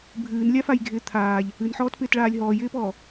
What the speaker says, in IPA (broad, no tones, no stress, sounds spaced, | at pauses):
bʱ ɨː n lʲ a f a j ɡʱ ɪː t̪ʰ aː ʎ | ɨ n ħ ɔː t p ɪː t ɭ aː lʲ ɦ ɔː j ɪː p ɔː